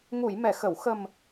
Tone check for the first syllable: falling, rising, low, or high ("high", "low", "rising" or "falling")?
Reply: low